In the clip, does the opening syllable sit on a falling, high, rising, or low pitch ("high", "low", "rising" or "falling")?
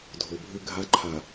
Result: low